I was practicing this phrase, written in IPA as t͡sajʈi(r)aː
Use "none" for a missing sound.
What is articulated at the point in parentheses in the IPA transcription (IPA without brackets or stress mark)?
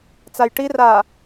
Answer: r